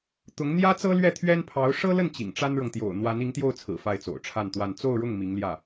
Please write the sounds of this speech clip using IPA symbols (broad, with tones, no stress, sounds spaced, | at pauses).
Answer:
t̪ ʊ˧˥ ŋ n̪ j ä˥ t͡s ɤ˥ l ɥ ɛ˥˩ t̪ʰ ɥ ɛ˥ n pʰ ɑ˧˥ ʊ̯ ʂ ɤ˥ l ə˥˩ n t͡ɕ ḭ˨˩ ŋ ʈ͡ʂ a˥ n ɻ ɤ˨ ŋ t̪ j o̰˨˩ ʊ̯ n̪ w a˧˥ n i˧˥ ŋ t̪ j o˥˩ ʊ̯ t͡sʰ ɹ̩˨˩ f a˥˩ ɪ̯ t͡s o̰˨˩ ʊ̯ ʈ͡ʂʰ a˥˧ n t̪ w a˥˧ n t͡s o˥˧ ʊ̯ ɻ ʊ˥˩ ŋ m i˧˥ ŋ l j ä˥˩